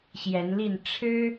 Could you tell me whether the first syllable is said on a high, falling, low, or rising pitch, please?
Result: rising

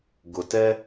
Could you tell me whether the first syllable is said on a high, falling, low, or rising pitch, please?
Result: low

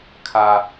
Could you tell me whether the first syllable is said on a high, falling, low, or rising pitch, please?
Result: low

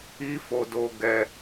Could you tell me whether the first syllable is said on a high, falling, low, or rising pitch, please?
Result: high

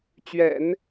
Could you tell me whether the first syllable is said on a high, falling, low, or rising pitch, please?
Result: low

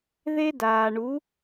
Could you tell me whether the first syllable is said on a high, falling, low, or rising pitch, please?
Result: high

